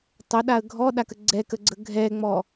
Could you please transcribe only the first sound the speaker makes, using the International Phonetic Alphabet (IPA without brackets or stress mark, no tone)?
tˤ